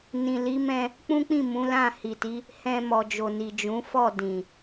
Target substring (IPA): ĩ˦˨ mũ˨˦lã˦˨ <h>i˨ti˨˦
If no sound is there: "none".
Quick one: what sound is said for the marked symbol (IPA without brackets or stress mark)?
h